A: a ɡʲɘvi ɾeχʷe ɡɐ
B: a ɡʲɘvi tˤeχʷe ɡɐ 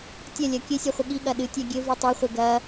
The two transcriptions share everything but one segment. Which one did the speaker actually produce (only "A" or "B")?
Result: B